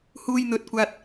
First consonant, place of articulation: glottal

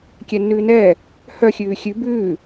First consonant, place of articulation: velar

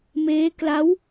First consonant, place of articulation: labial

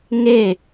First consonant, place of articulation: velar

